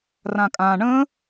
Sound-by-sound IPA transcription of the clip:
rãkʼã ɳə̃

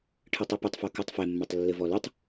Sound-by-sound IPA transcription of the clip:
ʈʰɨtˤipɨtˤfo kutˤfɛmːotˤ lːɘvɔlutˤ

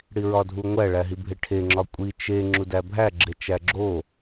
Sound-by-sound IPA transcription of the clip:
ɽiɹɒdʱuŋʷæ ɭæɦibʱeʈʰe ŋ͡ǁɒkʷʼi t͡ʃe ŋ͡ǁudæbʱæ ɡ͡ǁet͡ʃæɡ͡ǁo

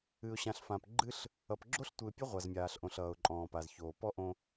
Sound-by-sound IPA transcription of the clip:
ɨ˨ʊ̯ɕã˨ɬ fã˨pɡ͡ǃɨ˦ɬ | ʌ˨pɡ͡ǁo˦ɬtʷɨ˨ɪ̯pʲʌ˦ ʁʷa˨zmʲaː˨ɬʔõ˨ɬ ʌː˨ʊ̯ǃʼɔ̃ː˨ pa˨zçoː˨pɔ˦ ʔõ˦

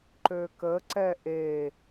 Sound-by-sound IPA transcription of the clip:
ǃøkə ǀɛʔe

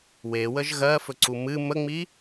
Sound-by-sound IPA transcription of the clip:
wewəʒ ɣɜfɵǀu mɨ məŋ͡mi

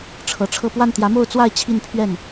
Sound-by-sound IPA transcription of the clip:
ʈ͡ʂʰɤ˨˩ʈ͡ʂʰɤ˥˧ pwa˥˩nt̪jä˧˥mo˥˧ʊ̯t͡swa˥˧ɪ̯ t͡ɕʰi˥˧npʰɥɛ˥˩n

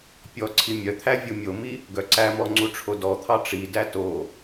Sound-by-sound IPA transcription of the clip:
pʲɔǀʰi mʲœt̪ʰæ vʲumʲomi | ɡœǀæmɔ ŋ͡ǀuʈ͡ʂʰodɔt̪ʰɑ ʈ͡ʂidæ to

